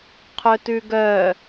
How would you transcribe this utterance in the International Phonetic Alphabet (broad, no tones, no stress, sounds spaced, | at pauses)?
qʰ ɵ t ʉ ɡ œ